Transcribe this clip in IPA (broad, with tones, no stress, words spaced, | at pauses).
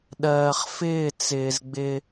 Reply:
ɗɜː˨χfɪː˦˨ t͡sɪː˨z ɡ͡bɪ˦